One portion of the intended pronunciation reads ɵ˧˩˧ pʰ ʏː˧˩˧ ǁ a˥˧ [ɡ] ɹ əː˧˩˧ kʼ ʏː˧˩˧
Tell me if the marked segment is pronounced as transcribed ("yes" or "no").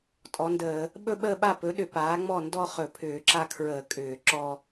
no